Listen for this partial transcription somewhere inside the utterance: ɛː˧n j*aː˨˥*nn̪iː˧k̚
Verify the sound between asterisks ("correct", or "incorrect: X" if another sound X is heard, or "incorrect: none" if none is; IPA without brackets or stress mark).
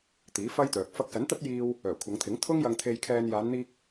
incorrect: aː˨˧